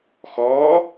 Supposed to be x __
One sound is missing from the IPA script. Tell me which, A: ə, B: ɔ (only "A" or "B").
B